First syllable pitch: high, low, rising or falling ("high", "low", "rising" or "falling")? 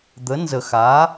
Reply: rising